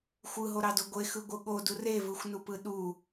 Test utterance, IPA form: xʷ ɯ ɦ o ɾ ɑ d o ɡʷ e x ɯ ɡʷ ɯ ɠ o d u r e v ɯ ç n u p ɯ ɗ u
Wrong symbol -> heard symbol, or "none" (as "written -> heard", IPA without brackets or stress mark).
ç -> xʷ